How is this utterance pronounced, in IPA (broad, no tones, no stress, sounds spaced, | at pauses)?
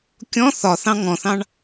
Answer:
kʲ ɔ̃ θ ɒ θ ɑ̃ ŋ ɔ̃ θ ɑ̃ ɳ